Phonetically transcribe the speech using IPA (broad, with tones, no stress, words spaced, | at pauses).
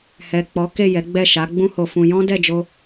hɛ˨ k͡pɔ˨˦ke˦˨jɛ˨˦ ɡ͡bɛ˦˨ ʃa˨˦ ɡ͡bũ˦ho˧fũ˧ jɔ̃˦dɛ˦˨d͡ʒo˧